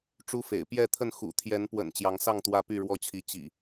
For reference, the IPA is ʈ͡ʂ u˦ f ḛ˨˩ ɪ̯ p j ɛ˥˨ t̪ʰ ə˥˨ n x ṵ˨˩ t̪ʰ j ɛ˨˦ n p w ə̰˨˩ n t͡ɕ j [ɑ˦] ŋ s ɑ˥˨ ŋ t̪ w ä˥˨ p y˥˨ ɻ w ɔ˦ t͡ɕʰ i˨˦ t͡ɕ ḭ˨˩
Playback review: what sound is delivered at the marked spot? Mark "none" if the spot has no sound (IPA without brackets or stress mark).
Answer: ɑ˨˦